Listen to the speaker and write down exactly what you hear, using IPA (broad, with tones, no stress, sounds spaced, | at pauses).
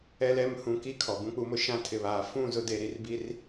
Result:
ɛ˨ l ɛ˨ m h ũ˨ k i˦ kʰ ɔ˨ b ũ˦ k͡p u˦ m ʊ˦ ʃ ã˦ tʰ ɪ˨ β aː˨ f ũ˦˨ z ʊ˦ d e˨ ɾ i˨ r b i˦ r